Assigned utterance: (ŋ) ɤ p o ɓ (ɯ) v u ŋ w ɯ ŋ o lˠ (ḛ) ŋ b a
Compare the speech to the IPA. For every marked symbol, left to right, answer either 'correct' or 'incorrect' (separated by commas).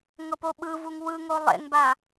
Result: correct, correct, correct